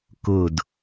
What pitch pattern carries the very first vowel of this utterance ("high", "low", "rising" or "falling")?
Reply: falling